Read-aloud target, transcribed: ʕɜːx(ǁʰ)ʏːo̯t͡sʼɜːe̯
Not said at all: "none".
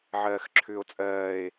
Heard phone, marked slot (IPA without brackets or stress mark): ǁʰ